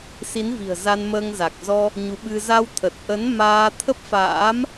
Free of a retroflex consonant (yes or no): yes